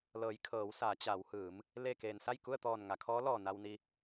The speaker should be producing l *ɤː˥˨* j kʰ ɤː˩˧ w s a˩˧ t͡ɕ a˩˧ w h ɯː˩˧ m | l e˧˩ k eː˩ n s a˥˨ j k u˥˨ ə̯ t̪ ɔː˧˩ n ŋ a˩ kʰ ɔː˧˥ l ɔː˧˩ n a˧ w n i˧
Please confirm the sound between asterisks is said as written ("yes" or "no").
no